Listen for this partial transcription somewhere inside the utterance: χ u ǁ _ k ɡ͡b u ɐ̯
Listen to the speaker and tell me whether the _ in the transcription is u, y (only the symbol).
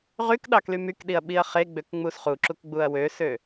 u